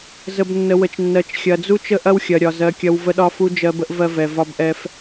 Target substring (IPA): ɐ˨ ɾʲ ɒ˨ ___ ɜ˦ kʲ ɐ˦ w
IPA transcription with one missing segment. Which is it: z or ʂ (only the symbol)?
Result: z